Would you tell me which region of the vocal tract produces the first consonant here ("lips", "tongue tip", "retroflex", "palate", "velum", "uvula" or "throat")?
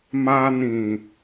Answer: lips